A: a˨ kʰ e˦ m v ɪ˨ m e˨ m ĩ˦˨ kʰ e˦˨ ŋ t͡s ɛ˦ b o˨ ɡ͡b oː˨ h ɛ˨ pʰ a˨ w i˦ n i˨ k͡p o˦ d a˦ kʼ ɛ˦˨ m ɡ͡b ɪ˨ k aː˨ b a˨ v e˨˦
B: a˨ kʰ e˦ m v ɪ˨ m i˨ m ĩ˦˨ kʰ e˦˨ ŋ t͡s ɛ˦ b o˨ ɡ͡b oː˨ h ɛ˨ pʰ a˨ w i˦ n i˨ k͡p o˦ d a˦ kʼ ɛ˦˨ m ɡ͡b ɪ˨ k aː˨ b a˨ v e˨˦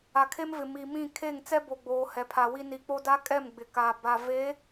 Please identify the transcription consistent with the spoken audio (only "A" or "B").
B